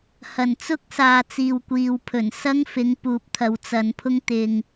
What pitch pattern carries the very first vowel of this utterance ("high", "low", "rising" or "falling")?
low